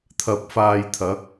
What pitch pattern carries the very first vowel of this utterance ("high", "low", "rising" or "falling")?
low